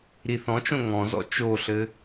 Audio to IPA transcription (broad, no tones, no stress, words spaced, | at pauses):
ɾiθɔ̃t͡ʃõ ŋɔ̃zɔ̰ t͡ʃoɬɘ